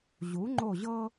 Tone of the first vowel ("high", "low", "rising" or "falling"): rising